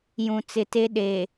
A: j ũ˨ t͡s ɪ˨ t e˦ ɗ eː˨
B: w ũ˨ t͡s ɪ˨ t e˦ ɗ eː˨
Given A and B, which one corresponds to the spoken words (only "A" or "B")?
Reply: A